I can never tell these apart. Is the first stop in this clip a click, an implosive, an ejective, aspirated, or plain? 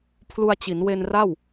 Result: aspirated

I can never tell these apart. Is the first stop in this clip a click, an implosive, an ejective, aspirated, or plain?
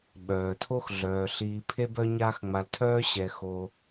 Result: implosive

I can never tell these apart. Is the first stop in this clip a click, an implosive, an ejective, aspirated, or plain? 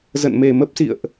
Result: plain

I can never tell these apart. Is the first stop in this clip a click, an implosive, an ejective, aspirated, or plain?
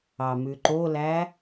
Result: click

